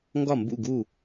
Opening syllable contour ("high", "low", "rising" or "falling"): falling